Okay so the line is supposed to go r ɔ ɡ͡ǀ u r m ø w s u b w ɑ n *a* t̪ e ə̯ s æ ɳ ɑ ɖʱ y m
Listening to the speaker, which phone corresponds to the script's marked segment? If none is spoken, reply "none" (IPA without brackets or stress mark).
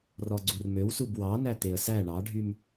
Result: æ